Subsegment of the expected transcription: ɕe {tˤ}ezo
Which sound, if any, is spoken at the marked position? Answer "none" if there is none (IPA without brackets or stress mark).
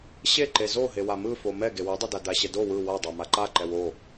ǃ